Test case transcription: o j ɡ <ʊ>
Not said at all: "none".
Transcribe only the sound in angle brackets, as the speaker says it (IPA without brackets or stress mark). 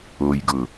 ʊ